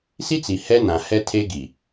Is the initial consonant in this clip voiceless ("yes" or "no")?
yes